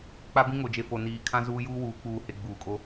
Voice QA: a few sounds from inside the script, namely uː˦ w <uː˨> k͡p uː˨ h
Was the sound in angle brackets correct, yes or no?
no